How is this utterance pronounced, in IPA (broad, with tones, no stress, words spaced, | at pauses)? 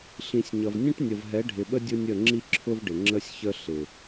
ɬĩ˨sʲɲʌ˨vnʲə̃˦ʈ nʲə˨vɦɛ˨˦ɖʱɪ˨ɓə˦ dʲʊ˦nʲə˦˨ ŋ͡ǁi˦ǁʰʊ˦vɖɪ˨ ŋ͡ǁə˦sʲçə˦ ɬɪ˨